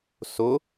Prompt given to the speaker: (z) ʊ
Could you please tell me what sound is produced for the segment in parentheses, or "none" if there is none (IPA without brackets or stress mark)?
s